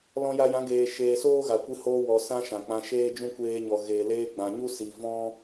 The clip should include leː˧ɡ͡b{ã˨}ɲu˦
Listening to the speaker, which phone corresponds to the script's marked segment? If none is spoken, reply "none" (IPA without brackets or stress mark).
ã˨